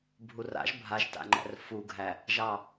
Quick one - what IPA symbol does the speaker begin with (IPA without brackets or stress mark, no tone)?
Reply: bʱ